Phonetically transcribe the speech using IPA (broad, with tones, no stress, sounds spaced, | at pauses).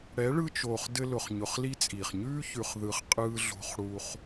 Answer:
ɽ ɛ˨˦ ɭ ɯ˧ t͡ʃ oː˨ χ d ɘ˧ l ʊ˨ χ ɲ ʊ˨ χ l i˦ t͡sʼ iː˨ χ ɲ ʉː˦ ç ʉ˨ χ ð ɯ˨ χ qʼ ɯː˧ ɮ o̤˧ χ ɽ u˧ χ